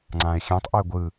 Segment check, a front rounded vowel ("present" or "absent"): present